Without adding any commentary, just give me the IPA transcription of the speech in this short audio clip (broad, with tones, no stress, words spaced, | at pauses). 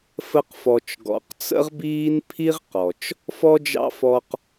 fə˧qfɔ˨t͡ʃ ɡɔ̰˨qt͡sə̰˦ʁbiː˦n pʰi˦ʁ qɔ˨t͡ʃ | fɔ˦d͡ʒɑ̰˦fɔ˧q